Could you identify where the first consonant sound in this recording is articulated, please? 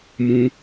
labial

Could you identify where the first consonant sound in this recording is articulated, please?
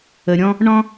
alveolar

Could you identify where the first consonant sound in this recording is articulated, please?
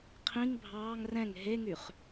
uvular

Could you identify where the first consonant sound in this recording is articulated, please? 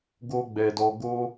velar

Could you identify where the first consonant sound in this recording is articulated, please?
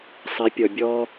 alveolar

